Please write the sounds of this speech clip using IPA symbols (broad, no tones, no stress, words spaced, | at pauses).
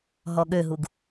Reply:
ɦɔɠøɦuɡ